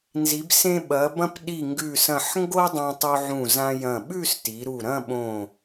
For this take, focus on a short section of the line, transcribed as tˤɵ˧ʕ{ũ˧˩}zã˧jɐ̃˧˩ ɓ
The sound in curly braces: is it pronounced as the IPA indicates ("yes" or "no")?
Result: yes